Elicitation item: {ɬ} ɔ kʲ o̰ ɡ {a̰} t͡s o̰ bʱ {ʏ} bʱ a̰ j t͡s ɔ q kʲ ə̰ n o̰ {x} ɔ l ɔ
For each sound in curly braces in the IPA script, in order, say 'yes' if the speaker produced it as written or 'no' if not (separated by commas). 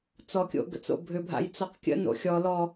no, no, yes, no